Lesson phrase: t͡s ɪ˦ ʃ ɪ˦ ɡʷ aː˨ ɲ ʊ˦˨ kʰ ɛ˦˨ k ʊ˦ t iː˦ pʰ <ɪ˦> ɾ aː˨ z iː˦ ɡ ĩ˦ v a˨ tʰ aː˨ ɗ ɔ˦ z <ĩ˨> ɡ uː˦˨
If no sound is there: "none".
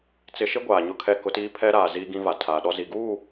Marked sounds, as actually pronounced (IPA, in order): ɛ˦, i˨

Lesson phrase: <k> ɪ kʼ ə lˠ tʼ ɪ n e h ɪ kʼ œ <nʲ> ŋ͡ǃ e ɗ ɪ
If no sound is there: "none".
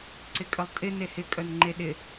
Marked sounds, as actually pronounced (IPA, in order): ǀ, n

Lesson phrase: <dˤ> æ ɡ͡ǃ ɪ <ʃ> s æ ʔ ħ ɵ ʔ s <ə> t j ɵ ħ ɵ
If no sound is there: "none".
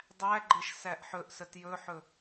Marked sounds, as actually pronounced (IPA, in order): dˤ, ʃ, ə

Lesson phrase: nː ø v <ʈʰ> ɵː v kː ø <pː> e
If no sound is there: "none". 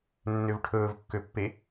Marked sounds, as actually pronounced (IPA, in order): ʈʰ, pː

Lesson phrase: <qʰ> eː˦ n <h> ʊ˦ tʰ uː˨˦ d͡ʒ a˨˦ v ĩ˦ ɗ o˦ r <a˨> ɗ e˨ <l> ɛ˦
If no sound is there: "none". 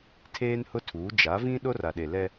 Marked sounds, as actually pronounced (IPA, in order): tʰ, h, a˨, l

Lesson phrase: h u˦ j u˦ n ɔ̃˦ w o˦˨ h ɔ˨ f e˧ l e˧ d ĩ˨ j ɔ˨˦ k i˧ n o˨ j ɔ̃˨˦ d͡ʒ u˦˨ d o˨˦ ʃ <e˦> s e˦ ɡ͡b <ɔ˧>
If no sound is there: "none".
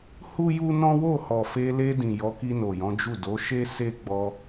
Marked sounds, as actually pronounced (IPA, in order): e˦, ɔ˧

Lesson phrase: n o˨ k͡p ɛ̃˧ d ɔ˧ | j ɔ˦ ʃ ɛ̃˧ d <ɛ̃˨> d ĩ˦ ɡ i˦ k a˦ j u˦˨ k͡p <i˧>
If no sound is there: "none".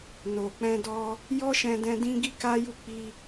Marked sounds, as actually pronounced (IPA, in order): ɛ̃˧, i˧

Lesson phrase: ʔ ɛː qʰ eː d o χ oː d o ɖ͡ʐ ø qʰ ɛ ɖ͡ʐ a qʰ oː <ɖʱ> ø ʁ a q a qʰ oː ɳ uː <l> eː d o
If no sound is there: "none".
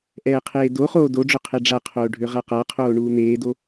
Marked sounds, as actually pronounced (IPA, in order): ɖʱ, n̪

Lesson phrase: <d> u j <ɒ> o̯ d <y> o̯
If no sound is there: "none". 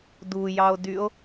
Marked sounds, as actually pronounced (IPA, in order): d, ɑ, y

